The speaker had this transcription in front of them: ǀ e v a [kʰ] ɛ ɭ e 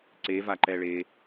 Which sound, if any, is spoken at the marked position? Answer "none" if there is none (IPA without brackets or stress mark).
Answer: ǃ